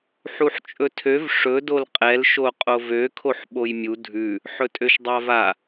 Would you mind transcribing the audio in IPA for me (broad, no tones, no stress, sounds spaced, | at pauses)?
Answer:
ħ u ħ t͡ʃʼ ɵ tʰ ø v ʂ ɵ d o l qʼ ɛ l ʃ o qʼ o v ø kʰ o ħ ɓ o j mʲ u dʱ ʉ | ħ ɵ tʼ ø ʃ dˤ a v a